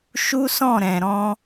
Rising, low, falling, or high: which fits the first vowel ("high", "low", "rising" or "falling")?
high